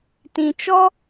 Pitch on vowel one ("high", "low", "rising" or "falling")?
low